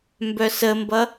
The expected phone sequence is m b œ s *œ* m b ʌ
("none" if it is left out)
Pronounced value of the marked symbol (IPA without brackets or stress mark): ə